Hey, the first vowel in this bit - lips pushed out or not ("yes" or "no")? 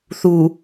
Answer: yes